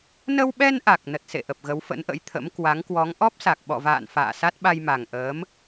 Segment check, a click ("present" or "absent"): absent